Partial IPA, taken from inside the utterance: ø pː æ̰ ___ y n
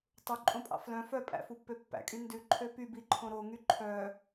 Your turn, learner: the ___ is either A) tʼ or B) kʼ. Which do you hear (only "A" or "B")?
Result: B